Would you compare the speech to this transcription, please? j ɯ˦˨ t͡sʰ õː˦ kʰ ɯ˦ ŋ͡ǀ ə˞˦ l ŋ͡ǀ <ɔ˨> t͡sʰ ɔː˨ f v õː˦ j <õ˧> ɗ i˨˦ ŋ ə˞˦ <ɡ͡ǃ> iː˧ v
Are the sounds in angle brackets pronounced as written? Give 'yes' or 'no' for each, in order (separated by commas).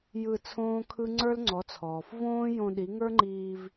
no, yes, no